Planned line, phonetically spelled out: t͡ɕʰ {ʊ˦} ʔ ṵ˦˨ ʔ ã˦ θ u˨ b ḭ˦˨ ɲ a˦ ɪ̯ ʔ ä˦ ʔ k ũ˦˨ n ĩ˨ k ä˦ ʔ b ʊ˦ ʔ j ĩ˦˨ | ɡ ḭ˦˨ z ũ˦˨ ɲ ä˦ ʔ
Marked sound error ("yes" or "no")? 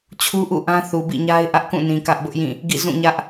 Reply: yes